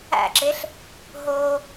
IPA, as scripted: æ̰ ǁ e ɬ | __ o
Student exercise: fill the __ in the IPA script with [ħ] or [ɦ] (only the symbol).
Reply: ɦ